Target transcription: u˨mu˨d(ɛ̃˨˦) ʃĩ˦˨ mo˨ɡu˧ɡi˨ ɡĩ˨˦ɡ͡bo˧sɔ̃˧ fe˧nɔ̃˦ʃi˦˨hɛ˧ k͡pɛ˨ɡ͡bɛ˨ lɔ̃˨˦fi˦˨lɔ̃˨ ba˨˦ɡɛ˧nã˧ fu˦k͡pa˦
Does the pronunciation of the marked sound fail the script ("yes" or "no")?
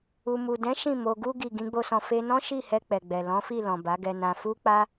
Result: no